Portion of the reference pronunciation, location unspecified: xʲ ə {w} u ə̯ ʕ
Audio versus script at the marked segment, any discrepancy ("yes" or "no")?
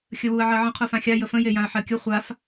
no